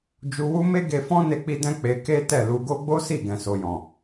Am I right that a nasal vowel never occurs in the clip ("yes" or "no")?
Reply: no